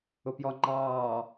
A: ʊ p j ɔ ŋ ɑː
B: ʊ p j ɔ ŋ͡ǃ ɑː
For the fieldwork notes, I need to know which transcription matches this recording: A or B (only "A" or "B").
B